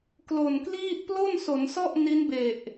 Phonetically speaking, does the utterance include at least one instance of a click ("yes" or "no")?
no